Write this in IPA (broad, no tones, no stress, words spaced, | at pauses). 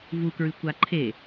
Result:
vukɹɨ kʷaǃʰe